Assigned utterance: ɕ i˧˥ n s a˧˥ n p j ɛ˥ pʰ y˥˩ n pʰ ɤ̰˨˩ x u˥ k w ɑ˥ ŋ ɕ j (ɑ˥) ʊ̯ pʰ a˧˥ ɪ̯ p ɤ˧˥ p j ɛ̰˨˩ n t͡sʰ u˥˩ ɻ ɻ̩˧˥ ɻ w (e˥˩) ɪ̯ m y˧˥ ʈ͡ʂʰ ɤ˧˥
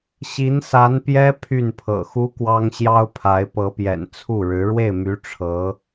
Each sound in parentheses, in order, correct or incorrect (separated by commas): correct, correct